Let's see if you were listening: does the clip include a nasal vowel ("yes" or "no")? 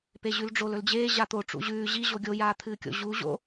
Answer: no